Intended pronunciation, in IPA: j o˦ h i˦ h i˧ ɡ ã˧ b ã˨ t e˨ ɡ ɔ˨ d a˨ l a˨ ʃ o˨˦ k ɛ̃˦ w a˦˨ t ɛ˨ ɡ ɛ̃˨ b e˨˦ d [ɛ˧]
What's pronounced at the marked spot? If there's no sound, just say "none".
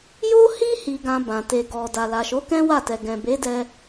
ɛ˧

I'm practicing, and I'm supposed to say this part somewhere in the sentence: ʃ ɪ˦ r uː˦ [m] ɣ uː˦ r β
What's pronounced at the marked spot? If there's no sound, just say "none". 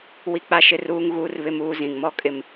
ŋ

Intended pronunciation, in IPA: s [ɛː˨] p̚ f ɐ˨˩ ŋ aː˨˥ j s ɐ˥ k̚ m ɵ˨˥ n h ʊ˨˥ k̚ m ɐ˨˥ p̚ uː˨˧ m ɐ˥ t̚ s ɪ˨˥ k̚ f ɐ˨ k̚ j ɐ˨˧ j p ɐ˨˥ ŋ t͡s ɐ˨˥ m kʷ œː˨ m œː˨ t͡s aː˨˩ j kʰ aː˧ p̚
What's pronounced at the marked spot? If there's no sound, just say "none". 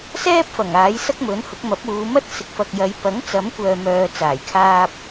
ɛː˥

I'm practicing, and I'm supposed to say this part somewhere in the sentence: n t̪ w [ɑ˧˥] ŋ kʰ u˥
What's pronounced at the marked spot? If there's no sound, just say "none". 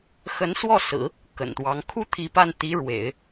ɑ˧˥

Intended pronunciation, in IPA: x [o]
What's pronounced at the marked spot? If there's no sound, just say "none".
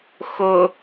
o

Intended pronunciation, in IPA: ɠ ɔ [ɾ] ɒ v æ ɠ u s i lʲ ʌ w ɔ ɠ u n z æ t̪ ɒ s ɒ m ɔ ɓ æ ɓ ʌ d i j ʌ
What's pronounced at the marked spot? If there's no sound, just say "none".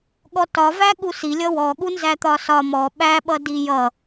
t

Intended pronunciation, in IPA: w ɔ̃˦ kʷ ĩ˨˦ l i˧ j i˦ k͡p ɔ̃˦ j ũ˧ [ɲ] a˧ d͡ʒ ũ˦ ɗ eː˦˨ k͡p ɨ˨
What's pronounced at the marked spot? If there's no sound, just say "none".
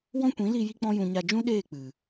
ɲ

